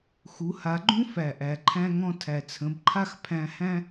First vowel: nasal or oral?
oral